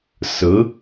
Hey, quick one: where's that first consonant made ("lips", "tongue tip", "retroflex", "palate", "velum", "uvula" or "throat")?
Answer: tongue tip